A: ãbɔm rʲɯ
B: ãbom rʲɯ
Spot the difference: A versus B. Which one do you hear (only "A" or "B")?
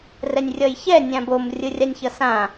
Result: B